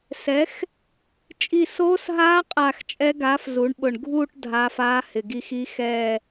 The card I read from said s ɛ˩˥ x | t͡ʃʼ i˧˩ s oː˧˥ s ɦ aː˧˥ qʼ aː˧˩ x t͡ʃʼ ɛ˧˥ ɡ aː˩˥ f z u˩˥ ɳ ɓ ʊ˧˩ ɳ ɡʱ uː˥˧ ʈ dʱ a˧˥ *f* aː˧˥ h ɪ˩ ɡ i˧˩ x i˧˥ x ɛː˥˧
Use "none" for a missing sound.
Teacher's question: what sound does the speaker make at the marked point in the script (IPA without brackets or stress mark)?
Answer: f